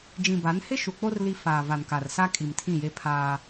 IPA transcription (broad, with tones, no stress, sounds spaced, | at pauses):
d͡ʒ ĩ˨ b a˨˦ n h ɪ˦ ʃ u˨ k͡p o˦ r l i˦ f aː˨ v a˨ n k a˨ r s a˦ kʼ i˨ m tʰ ĩ˦˨ j e˦ pʰ aː˦